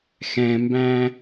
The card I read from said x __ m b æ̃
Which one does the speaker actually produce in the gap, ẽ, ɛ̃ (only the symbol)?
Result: ɛ̃